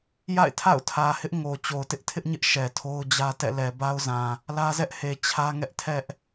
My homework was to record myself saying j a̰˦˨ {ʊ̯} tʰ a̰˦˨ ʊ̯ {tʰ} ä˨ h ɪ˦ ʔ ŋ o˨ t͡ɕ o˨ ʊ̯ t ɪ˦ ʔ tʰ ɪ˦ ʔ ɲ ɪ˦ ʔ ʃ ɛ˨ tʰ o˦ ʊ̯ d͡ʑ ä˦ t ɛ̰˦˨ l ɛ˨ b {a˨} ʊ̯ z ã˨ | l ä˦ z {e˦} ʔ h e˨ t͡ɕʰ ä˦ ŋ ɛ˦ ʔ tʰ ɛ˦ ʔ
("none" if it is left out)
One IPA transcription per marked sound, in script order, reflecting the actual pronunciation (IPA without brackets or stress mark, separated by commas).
ɪ̯, tʰ, a˦, ɛ˦